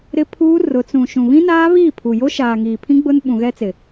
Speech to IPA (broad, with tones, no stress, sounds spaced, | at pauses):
ɾ ɪ˦ pʰ uː˦ r ʊ˨˦ t͡s ũ˨ ʃ ũ˨ β ĩ˦ n aː˦ β iː˦˨ pʰ u˨ j o˦ ʃ aː˨ ŋ iː˨ pʰ ĩ˦ ɡ͡b ʊ˦ n ɓ ũ˨ ɣ ɛ˦ t͡s ɪ˨